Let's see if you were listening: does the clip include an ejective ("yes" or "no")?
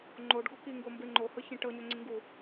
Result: no